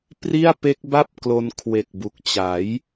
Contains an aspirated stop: yes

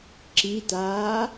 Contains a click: yes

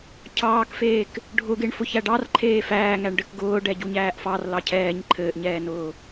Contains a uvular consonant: no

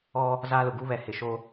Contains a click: no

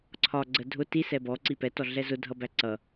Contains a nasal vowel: no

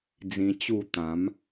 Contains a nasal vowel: yes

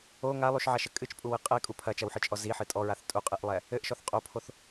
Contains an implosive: no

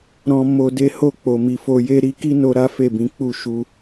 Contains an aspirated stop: no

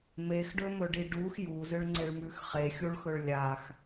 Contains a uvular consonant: yes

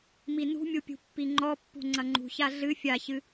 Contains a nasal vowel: no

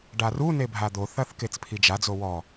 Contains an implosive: no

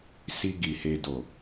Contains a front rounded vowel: no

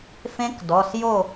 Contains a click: no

